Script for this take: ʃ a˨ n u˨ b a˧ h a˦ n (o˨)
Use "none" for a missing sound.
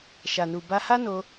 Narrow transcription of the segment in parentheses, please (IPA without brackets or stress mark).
o˧